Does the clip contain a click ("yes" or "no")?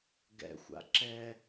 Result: yes